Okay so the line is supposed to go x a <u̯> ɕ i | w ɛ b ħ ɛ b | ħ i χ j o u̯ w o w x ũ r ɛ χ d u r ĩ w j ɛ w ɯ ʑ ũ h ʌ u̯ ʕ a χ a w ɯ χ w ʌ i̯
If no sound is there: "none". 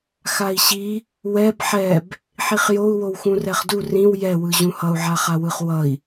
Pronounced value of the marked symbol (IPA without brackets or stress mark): i̯